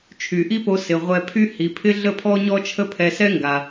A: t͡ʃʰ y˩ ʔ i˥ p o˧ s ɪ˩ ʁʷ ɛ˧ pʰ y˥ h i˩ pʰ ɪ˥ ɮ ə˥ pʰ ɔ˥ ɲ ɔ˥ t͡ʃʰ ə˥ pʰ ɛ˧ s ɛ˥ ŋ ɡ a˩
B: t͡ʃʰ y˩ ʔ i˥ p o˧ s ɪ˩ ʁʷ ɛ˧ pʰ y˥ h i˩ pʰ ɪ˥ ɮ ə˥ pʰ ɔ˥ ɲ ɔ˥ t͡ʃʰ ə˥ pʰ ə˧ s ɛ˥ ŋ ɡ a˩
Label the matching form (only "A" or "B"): A